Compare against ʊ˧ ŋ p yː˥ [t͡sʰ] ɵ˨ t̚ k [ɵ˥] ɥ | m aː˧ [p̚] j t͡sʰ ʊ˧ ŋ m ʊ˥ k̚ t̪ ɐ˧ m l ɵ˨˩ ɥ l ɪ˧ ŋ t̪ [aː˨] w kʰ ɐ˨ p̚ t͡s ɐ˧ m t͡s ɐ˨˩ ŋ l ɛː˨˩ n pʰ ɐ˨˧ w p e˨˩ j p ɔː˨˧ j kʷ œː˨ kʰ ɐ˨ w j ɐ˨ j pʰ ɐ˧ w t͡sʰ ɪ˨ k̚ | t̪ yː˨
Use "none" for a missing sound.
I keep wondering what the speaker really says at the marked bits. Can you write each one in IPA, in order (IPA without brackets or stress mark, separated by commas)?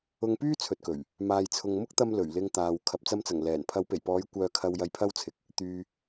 t͡sʰ, ɵ˨˩, none, aː˨